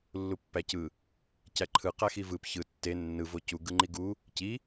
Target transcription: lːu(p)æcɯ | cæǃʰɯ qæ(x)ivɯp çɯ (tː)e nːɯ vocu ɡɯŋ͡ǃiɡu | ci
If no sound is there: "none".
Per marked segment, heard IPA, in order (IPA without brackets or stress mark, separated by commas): pː, x, tː